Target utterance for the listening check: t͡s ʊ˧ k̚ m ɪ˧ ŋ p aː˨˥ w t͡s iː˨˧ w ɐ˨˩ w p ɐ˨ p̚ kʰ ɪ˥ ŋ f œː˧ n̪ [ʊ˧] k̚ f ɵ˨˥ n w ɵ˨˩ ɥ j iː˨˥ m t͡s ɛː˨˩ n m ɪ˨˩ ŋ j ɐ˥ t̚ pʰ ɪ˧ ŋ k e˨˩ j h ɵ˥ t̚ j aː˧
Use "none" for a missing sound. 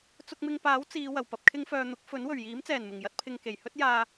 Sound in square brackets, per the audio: ʊ˨˥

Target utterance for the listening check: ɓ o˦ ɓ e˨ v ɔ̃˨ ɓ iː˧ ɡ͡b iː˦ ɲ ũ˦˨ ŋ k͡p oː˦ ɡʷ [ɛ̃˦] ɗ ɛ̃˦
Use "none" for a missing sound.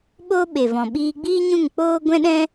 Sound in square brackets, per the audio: ɛ̃˦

